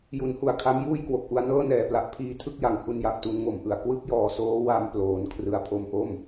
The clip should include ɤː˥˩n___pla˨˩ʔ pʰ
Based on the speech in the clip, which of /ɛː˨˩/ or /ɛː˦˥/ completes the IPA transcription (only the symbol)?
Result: ɛː˨˩